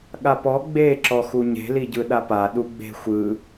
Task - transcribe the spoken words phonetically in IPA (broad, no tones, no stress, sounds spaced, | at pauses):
ɠ a p ɔ ɡ͡b e ǁ ɔ x u ɲ e̤ l i ɟ ɯ ɗ a p a ɗ u ɡ͡b e̤ xʷ ɯ